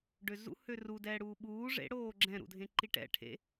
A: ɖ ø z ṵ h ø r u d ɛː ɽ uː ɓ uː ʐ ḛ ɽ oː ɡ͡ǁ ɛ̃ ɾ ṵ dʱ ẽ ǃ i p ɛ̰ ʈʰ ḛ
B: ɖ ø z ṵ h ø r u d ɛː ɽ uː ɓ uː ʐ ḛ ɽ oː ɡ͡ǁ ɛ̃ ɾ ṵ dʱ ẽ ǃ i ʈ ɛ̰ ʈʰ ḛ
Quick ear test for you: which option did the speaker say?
B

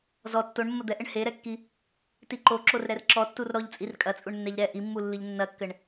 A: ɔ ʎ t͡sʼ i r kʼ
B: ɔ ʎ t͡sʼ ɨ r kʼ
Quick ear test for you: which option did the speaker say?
A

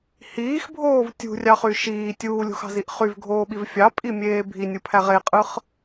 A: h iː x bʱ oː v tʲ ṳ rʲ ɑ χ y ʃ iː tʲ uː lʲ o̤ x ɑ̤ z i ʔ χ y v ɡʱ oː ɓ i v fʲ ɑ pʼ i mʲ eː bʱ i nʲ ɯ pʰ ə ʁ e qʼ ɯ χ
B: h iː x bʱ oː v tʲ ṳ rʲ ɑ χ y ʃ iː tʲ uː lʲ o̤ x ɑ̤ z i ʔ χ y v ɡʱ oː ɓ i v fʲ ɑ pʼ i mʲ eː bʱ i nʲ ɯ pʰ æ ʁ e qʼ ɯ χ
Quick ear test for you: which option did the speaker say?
B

